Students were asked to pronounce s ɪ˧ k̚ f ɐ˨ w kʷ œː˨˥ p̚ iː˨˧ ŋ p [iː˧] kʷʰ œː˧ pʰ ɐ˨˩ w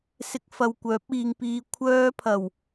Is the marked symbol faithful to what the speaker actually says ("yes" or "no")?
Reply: yes